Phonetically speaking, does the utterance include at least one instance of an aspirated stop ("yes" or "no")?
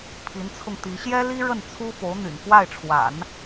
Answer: yes